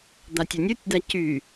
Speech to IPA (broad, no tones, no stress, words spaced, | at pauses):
d̪atʲonʲutʲd̪a cy